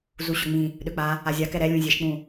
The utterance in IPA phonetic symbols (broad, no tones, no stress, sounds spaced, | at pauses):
z u ɕ ø ŋ͡m ĩ | ɗ ø k͡p a | a zʲ a k ɛ ɾ ɛ lʲ ũ zʲ e ʃ k͡p ũ